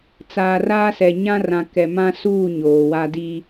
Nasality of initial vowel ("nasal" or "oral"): oral